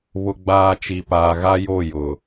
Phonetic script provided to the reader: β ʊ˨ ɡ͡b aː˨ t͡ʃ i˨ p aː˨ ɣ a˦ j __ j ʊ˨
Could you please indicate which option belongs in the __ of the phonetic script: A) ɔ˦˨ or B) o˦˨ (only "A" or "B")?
B